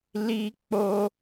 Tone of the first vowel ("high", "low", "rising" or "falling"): high